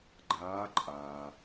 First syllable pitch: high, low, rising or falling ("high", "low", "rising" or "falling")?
rising